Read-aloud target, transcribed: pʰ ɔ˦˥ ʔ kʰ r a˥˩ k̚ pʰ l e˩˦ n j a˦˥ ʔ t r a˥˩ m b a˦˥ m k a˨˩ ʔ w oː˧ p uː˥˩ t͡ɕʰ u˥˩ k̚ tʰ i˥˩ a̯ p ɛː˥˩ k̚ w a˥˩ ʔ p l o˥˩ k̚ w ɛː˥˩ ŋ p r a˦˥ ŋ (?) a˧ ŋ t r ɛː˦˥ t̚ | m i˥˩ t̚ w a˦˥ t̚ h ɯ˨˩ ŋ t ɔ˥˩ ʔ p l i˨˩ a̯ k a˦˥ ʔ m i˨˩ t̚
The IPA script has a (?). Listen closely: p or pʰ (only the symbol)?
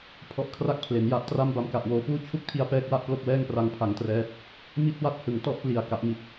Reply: pʰ